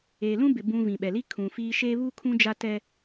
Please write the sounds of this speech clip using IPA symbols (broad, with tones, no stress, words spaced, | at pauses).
eː˨lũ˦bɪ˨ bũ˨ vĩ˨ɓɛ˨li˦ kʰũ˨fiː˦ ʃeː˦βuː˦kʰũ˦ d͡ʒa˦tɛ˦